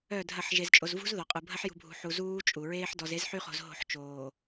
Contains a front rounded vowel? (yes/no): yes